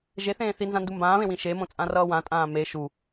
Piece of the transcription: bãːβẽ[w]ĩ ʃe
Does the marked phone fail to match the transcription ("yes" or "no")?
no